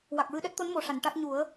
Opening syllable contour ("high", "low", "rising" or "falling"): low